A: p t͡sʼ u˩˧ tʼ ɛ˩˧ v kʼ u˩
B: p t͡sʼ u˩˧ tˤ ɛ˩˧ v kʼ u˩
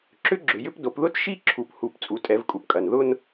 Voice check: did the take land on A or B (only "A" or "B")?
A